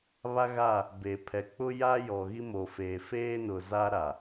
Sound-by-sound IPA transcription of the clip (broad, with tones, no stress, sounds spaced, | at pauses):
β a˦ ɣ a˦˨ | b e˨ pʰ ɛ˨ k͡p ʊ˦ j a˦ j ɔ˨ ɣ i˦ m o˨ f eː˨ f eː˦ n ʊ˨ z a˦ ɾ a˨